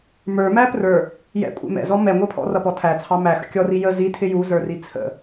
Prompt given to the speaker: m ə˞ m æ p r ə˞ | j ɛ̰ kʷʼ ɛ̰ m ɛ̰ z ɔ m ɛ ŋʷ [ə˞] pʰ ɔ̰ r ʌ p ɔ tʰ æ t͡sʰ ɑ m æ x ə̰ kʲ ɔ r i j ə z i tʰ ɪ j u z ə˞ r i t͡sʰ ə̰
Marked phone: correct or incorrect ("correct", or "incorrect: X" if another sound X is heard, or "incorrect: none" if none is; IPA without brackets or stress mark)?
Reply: correct